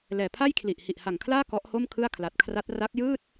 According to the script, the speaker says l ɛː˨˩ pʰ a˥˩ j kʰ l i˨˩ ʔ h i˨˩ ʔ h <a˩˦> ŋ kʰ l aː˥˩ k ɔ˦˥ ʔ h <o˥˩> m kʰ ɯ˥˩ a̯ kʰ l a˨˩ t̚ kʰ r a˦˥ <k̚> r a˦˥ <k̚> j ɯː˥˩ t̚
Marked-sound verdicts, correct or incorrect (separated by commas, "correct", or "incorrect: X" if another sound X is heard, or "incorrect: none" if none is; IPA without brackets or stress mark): incorrect: a˨˩, correct, incorrect: t̚, correct